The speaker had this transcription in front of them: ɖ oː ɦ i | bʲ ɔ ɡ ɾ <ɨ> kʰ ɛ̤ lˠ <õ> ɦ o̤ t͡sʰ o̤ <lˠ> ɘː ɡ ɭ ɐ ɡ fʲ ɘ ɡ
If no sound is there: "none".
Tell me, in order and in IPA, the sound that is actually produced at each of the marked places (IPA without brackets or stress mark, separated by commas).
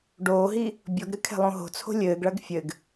ɨ, õ, lʲ